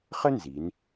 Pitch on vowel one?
high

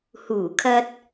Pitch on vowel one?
low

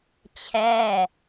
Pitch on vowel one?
falling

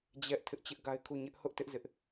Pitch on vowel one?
high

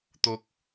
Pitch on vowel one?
low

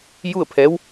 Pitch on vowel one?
falling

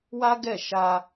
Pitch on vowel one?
high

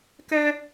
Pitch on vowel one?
high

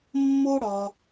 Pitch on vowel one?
high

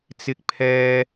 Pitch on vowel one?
high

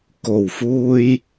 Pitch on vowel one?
low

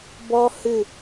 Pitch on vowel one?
high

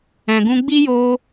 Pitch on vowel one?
low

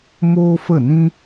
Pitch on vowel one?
high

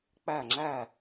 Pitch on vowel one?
falling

